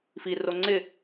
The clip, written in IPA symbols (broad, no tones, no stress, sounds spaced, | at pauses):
f i r o ŋ͡ǀ ɪ